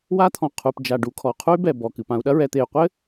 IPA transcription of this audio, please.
wa˦t̪ʰɔ̃˨qʰu˨p d͡ʒa˨ ɖu˨kʰɔ˨ qʰu˦y̯bɛ˨ bɔ˨kɨ˨pã˦u̯ ɗɐ˦ɹɛ˨t̪e˨y̯ qʷɘ˦

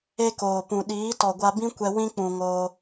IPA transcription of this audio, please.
e˦koː˨pũ˨ ɗiː˨˦tɔ˨ɡʷa˧bĩ˦ kʷɛ˧wĩ˦k͡pũ˨ ŋoː˧

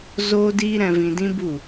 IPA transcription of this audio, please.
zoː˦diː˦ ɾɛ̃˧vĩ˧dĩ˦ bu˦˨

